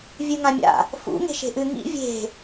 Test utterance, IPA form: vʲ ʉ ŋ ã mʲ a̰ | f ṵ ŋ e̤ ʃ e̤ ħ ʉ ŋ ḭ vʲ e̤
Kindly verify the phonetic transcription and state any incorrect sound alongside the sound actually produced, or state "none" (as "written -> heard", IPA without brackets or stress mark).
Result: ħ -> ʔ